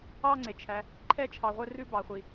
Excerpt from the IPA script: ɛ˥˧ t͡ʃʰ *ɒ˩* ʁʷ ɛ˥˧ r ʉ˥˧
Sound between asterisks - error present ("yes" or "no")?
yes